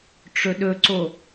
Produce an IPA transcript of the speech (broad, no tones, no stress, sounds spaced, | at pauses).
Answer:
ʈ͡ʂ ɵ ɗ ɵ ǀ o